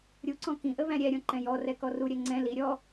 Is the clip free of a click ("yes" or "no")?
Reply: no